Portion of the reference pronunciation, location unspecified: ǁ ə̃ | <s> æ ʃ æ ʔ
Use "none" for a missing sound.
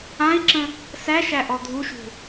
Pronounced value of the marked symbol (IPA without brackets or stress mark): s